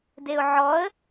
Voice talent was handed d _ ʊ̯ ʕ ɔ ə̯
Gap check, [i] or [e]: e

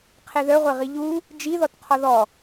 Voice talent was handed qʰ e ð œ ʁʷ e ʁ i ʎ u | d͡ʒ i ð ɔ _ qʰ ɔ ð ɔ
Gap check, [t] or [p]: t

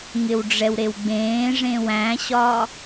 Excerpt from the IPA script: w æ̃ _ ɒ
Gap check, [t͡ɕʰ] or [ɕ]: ɕ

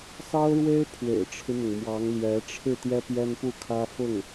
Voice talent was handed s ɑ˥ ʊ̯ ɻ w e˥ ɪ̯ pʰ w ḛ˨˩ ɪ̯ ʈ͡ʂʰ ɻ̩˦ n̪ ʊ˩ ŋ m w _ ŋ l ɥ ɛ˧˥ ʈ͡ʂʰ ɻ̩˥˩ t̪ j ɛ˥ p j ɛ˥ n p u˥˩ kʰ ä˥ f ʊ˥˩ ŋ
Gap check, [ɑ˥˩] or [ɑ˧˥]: ɑ˧˥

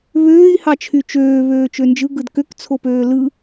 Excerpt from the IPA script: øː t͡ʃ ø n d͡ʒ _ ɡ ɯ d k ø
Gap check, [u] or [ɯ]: ɯ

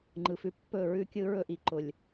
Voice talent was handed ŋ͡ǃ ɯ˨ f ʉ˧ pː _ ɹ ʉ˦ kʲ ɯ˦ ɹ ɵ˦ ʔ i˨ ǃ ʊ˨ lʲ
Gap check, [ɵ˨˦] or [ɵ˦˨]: ɵ˦˨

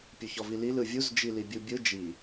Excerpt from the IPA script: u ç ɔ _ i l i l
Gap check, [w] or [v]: v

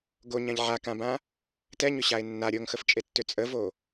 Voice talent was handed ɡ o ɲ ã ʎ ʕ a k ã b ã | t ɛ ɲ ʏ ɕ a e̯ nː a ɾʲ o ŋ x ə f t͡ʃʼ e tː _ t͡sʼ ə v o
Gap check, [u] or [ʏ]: ʏ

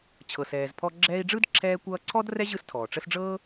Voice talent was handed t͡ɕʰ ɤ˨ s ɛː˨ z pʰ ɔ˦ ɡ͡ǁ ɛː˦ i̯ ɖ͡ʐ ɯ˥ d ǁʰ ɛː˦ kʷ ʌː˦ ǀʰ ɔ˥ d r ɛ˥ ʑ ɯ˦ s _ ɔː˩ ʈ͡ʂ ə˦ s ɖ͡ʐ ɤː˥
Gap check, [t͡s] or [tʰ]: tʰ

